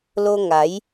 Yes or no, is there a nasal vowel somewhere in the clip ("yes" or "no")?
no